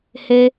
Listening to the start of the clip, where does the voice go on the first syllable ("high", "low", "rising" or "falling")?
high